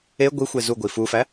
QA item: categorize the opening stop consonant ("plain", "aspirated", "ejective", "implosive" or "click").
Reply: plain